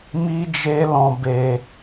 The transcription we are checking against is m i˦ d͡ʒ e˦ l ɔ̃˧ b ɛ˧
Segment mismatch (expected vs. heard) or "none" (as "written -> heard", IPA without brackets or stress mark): ɛ˧ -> e˧